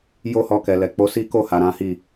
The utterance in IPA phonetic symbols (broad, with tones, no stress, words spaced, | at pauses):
jo˦hɔ˧kɛ˨ lɛ˨ k͡po˨˦si˦ ko˦˨ha˨ ɾã˨˦hi˦˨